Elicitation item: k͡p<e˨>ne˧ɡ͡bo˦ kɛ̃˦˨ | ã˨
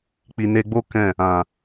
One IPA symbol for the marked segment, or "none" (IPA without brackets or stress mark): i˨